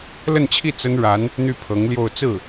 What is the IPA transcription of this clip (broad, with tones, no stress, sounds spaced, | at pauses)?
l ə˥˧ n t͡ɕʰ i˥˩ t͡s ə˥ n ɻ a˧˥ n | n̪ y˥˩ pʰ ɤ˧˥ ŋ l j o˥˧ ʊ̯ t͡s ɹ̩˥˩